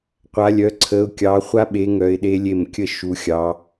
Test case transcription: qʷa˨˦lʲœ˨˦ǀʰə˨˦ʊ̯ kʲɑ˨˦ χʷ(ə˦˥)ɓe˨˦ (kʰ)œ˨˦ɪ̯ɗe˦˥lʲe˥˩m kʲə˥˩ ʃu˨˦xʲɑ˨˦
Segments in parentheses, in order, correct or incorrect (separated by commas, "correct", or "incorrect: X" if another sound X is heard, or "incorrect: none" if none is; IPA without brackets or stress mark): incorrect: a˦˥, incorrect: ŋ